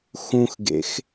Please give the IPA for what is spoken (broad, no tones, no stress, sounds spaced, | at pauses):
x ũ x ɡ ḛ x